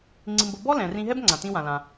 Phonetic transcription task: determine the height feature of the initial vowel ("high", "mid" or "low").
high